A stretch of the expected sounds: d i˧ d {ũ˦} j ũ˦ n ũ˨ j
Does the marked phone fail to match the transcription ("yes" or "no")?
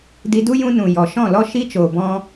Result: yes